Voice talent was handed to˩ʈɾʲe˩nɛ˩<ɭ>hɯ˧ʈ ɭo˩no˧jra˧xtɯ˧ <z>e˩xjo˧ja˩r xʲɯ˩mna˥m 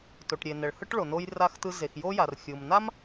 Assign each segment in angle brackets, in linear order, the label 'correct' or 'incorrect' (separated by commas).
correct, correct